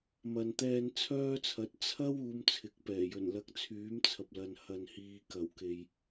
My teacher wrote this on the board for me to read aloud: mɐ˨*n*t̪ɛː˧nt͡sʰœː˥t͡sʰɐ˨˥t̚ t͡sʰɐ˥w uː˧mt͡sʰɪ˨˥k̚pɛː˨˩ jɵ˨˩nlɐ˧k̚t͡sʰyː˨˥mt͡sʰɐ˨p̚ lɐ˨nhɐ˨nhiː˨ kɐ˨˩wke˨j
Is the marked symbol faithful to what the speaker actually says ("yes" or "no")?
yes